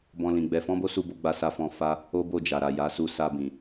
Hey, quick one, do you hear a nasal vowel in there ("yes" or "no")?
yes